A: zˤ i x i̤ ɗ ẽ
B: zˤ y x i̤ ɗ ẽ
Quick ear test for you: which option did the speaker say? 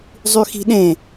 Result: B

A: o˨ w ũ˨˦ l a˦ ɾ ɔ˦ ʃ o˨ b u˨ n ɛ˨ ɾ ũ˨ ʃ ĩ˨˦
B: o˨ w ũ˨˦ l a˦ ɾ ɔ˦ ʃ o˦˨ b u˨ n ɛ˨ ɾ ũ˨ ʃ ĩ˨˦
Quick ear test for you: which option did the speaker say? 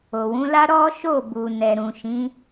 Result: B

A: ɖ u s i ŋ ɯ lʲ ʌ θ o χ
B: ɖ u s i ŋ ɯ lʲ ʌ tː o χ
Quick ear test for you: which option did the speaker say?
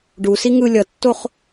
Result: B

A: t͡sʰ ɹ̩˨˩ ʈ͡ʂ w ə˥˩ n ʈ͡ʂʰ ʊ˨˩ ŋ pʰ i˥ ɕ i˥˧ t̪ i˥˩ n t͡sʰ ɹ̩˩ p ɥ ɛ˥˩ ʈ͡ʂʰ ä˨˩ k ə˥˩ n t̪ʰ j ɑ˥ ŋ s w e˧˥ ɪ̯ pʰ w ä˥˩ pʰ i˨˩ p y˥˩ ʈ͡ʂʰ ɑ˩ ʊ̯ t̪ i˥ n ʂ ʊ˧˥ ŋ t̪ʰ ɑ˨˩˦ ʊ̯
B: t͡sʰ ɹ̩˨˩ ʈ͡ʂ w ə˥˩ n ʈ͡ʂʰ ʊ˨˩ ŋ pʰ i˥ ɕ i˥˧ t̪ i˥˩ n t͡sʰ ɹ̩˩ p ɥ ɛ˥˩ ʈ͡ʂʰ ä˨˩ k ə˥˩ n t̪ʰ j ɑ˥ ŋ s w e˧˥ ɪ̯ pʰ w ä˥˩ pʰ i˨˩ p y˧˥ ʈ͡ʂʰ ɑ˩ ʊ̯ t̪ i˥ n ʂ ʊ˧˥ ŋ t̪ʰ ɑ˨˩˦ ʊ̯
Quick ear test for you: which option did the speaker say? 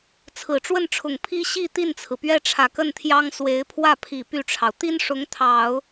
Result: A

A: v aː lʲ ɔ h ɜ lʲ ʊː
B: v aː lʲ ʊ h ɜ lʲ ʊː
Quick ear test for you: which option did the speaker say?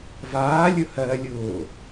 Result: B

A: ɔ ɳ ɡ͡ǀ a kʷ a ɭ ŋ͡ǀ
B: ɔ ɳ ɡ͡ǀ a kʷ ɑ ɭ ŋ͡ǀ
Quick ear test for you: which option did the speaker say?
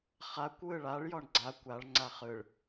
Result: A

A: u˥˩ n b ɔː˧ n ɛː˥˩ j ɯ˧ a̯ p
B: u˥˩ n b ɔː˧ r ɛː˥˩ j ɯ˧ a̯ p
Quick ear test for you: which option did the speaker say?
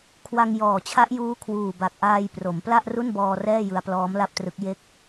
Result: B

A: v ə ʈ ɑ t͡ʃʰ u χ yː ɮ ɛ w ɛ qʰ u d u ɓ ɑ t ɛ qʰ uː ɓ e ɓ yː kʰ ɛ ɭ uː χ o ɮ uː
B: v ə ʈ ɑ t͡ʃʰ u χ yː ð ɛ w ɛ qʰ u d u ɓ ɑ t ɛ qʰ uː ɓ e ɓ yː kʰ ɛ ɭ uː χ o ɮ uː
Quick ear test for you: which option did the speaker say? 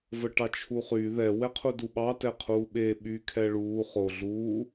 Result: B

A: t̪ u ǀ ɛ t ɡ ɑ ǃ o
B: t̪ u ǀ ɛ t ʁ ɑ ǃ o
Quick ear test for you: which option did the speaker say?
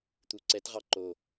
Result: B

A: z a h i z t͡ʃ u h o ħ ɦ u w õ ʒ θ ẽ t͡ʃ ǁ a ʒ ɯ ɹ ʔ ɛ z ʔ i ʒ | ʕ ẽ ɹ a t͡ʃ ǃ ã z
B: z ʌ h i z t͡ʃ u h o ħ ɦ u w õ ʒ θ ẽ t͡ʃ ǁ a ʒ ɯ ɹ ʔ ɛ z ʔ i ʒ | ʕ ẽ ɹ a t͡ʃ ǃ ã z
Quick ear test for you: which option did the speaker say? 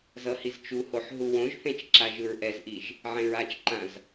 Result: B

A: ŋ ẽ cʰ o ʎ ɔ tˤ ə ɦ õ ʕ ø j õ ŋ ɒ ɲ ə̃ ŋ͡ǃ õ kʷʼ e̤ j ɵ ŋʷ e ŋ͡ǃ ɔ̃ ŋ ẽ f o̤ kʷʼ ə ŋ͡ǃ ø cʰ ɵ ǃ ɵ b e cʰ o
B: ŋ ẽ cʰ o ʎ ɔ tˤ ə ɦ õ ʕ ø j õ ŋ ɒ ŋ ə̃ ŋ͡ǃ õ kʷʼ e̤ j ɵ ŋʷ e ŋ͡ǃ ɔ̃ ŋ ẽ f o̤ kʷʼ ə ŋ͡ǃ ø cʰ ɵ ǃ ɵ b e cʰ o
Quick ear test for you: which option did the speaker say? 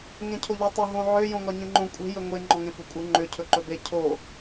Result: A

